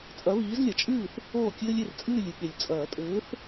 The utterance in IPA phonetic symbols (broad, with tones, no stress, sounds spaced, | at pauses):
t͡sʼ ɐ˨˥ β iː˨˥ z lʲ ɐ˨ t͡ʃʼ ɨː˥˩ θ | oː˥˩ kʲ ɘː˦ lʲ e˥˩ r t͡sʼ ɨː˥˩ lʲ ɨ˨˥ ɠ e˨ lʲ t͡sʼ ɐː˨˩˦ tʼ ɘː˨˥ θ